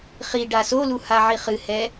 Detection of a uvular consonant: present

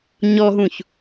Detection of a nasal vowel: present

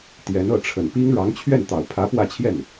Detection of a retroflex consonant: present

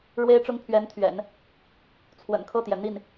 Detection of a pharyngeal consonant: absent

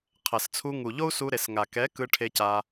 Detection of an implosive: absent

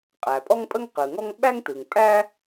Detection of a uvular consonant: present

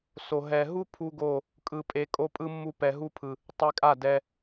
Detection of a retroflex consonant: absent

